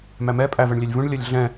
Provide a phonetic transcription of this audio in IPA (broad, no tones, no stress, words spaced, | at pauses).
mæmɛ pʼæ vɜɳlʲɛlʲvũɳ lʲʌlʲɮɛ̃